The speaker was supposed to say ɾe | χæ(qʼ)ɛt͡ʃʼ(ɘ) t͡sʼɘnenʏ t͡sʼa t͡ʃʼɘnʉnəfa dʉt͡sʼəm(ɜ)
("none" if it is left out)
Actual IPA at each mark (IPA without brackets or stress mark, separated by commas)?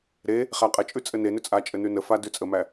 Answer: qʼ, ʉ, æ